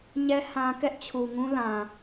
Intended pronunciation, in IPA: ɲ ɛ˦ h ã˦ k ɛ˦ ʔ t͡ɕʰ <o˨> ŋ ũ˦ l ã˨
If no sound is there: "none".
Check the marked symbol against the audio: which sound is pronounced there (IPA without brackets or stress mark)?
u˨